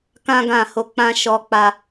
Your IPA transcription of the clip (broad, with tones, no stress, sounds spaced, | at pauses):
k ã˦ ɡ ã˦˨ h o˧ k͡p ã˦ ʃ ɔ˧ k͡p a˧